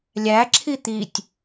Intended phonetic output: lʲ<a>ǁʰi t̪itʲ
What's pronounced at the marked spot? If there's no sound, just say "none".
æ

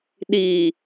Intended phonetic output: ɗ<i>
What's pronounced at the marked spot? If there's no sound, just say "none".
i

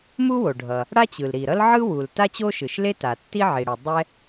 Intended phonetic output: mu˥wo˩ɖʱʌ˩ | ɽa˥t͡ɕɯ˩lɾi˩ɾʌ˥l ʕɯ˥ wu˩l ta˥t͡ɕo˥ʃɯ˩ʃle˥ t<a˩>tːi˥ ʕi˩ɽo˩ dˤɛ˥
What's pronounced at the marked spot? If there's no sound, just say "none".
a˩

